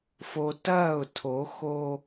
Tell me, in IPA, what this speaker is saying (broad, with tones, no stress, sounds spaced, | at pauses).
f o˨ t ɐː˦˨ ʊ̯ tʰ o˨˦ x o˦